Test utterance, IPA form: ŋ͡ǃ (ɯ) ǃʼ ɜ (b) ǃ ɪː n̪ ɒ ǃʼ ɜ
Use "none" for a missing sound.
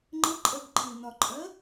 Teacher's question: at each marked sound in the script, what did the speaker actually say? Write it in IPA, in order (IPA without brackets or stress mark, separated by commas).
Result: ə, b